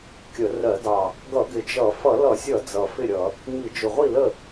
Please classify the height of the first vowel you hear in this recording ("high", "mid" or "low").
mid